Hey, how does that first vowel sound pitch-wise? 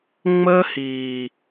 high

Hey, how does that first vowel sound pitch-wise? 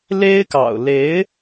high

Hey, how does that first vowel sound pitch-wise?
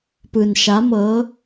low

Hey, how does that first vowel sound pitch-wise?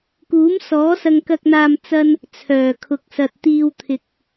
rising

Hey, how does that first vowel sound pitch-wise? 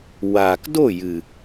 low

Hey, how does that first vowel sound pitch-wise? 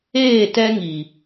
falling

